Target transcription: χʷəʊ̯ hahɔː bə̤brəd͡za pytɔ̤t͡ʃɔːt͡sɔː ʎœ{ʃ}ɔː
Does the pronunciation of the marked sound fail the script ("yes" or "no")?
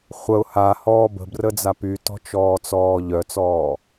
yes